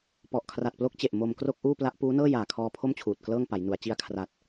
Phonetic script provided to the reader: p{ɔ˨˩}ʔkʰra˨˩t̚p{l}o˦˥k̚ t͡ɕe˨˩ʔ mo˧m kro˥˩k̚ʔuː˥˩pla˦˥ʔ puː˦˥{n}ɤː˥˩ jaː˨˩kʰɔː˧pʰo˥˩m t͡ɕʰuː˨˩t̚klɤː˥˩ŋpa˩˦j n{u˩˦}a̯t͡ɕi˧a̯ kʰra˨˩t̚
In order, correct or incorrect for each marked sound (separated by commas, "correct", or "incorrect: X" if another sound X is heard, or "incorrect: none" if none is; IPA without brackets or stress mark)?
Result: correct, correct, correct, correct